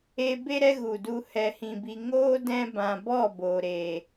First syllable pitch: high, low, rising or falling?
high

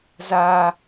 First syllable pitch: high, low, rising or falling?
high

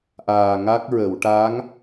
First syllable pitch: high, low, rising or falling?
low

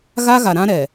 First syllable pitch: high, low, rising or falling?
high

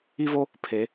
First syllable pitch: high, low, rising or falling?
high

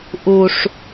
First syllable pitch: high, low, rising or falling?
low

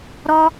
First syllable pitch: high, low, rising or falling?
high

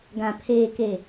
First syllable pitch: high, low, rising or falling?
low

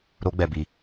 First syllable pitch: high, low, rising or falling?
high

